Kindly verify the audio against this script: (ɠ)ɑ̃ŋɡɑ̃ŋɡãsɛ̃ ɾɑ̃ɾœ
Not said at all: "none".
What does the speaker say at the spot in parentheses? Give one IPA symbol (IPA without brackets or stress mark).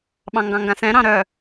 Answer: ɓ